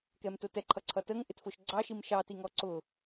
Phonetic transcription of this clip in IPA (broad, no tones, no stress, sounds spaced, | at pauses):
k ɛ m t ʊ t ɛ ǃʰ ʌ ǀʰ ʌ t ə ŋ ʔ ɪ t f ʊ ʃ ɡ͡ǀ ɑ ʃ i m ʃ ɑ t i ŋ ɔ ǀ ʊ